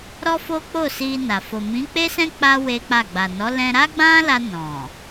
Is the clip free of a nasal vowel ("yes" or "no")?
no